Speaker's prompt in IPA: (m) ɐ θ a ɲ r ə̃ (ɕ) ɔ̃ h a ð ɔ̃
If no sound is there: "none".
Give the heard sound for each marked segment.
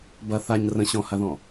b, ɕ

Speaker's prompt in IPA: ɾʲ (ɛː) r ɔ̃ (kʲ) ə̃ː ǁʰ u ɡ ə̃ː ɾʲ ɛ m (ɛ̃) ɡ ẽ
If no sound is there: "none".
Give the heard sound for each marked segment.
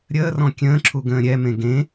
əː, kʲ, ẽ

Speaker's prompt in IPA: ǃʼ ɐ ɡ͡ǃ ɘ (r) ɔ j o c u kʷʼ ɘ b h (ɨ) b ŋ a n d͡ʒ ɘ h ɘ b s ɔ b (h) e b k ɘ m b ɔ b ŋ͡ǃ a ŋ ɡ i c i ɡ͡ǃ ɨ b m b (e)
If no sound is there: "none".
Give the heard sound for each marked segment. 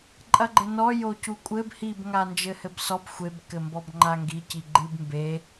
n, i, xʷ, e

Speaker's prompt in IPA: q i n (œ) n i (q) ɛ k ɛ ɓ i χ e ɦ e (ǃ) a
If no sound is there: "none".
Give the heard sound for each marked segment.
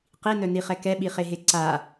œ, χ, ǀ

